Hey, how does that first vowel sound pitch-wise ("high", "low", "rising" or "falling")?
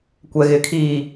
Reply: low